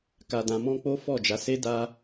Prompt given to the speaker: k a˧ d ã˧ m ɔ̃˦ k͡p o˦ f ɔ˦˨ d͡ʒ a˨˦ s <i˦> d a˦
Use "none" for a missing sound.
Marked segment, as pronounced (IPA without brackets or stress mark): e˦